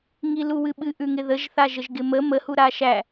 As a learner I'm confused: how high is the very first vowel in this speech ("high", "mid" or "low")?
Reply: high